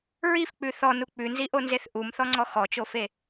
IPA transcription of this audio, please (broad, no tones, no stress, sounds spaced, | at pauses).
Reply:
ɹ i f k͡p ʉ θ ɔ n u k͡p ʉ n z i ʔ o n z e θ ʔ u m θ ɔ ŋ͡ǀ ɔ x ɔ t͡ʃ o f e